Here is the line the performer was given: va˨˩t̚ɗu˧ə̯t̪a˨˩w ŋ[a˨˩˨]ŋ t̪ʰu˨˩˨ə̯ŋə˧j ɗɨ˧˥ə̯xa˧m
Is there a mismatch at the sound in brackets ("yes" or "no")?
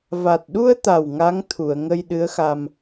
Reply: yes